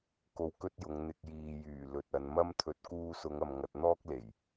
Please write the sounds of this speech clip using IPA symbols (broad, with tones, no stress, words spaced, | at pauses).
ko˧wkɵ˥t̚jʊ˨˧ŋ n̪ɪ˨k̚jiː˨jyː˨˩ lɵ˨t̚ɐ˨˧n mɐ˥mt̪ʰɵ˧t̚ kuː˧sʊ˨˧ŋɐ˨m ŋɐ˧t̚n̪ɔː˥k̚le˨˩j